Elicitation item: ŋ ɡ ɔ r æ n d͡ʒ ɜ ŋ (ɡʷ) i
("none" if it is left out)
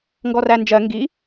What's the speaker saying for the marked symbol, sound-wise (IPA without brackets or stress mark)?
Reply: ɡ